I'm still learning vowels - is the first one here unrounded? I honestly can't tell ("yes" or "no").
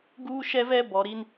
no